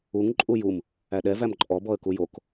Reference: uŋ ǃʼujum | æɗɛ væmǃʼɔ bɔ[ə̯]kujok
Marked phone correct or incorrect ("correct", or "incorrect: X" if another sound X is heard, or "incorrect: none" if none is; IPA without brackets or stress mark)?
correct